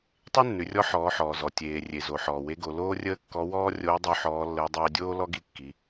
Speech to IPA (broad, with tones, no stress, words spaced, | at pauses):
tˤe˥nːʉ˩˧rʲɔ˧˥ ħɔː˩˧ħɔː˩ zɔ˩ tʲeː˩rʲe˩zo˩ ħɔː˩we˧˥ɡo˩˧ loː˥rʲəː˥kːɔ˧˥ wɔː˥ rʲoː˧˥dˤo˧ ħɔː˩˧lːəː˩˧ dˤeː˧dʲoː˥ lɔ˥ɡi˧˥kːi˩˧